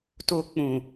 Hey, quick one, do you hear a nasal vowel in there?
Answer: yes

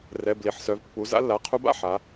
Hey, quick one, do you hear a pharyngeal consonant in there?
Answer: yes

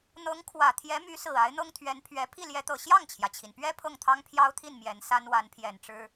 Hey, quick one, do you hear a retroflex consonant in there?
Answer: yes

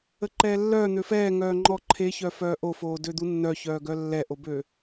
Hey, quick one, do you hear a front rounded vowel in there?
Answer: yes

